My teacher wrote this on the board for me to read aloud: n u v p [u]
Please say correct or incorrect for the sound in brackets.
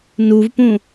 incorrect